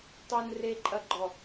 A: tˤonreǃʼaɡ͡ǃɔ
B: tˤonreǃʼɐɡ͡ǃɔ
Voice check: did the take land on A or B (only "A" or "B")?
B